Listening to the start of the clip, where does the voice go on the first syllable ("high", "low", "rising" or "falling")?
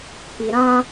low